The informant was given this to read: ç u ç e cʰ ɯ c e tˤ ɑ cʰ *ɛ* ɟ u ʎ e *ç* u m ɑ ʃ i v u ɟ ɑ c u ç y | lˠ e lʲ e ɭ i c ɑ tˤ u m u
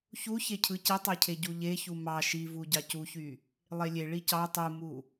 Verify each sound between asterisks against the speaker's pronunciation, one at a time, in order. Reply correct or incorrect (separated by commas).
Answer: incorrect, correct